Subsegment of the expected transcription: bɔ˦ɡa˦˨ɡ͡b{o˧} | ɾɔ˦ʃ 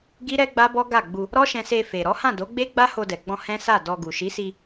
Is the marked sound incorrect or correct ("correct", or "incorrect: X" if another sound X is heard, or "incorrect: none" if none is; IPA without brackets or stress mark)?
incorrect: u˧